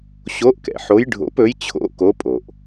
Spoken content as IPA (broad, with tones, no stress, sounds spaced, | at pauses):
ɕ o˧˥ ʔ k ɛ̰˩ ħ o˧˥ j ɖʱ o̰˧˥ p ɵ˧˥ j t͡ɕʰ o̰˧˥ k o˧˥ pʼ o˩ ʔ